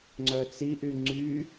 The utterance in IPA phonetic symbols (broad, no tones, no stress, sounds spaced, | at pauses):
ŋ͡ǀ œ t͡s i ʔ y ŋ͡ǀ y